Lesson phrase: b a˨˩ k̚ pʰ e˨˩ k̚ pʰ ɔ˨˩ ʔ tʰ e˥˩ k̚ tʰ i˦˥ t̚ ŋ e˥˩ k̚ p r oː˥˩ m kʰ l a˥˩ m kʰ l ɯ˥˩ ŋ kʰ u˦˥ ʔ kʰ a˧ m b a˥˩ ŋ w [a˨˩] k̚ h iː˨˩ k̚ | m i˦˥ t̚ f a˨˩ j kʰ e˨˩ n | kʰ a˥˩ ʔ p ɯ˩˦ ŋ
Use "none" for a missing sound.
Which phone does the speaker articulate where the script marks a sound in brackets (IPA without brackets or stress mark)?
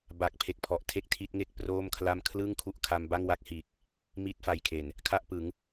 a˦˥